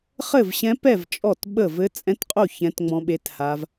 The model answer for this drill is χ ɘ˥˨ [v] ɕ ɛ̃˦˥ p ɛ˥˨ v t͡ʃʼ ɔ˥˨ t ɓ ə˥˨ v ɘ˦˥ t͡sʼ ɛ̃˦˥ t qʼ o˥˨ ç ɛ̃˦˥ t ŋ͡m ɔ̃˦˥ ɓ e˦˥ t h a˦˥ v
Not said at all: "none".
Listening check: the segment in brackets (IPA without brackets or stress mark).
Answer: v